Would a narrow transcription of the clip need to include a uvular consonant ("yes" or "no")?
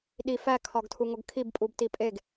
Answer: no